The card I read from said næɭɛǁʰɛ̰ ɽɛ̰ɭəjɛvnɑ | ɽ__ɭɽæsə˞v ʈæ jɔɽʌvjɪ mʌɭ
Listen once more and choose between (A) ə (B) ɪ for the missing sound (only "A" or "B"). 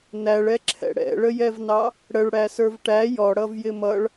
A